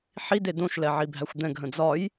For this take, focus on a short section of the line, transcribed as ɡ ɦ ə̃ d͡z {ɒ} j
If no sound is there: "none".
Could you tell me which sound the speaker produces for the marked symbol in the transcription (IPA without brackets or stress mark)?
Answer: ɒ